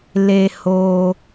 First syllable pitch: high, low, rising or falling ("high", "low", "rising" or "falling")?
low